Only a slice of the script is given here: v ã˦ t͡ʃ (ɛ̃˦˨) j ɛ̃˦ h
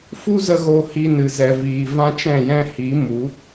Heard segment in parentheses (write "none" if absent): ɛ̃˦˨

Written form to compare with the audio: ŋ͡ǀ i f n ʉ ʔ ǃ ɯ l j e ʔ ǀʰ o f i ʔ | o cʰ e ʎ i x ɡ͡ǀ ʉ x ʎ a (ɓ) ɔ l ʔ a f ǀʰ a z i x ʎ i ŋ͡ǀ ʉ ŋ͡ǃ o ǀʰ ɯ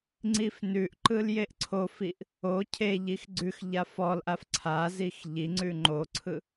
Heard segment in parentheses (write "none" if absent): f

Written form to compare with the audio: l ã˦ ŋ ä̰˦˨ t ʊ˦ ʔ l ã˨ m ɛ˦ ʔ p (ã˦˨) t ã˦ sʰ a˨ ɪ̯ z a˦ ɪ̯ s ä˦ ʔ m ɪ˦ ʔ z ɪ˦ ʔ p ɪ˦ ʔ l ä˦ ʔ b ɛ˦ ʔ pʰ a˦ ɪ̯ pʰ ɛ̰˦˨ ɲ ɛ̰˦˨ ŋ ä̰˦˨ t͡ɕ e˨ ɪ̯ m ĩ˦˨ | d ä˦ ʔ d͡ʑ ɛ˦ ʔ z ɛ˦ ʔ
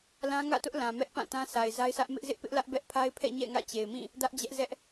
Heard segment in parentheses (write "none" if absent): ã˦˨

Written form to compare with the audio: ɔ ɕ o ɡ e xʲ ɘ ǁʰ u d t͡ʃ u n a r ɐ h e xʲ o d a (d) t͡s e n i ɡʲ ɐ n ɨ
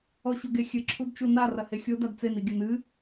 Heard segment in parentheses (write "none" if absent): d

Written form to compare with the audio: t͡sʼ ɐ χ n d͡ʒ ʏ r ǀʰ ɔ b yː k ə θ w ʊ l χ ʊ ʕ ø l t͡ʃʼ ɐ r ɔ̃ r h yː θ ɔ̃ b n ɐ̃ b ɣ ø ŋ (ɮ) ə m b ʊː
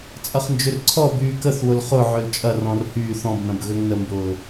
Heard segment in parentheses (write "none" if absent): n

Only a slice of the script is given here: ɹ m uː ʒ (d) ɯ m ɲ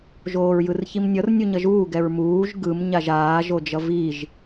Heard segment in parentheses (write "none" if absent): ɡ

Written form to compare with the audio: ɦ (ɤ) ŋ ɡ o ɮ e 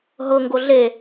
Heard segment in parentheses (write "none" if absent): ɤ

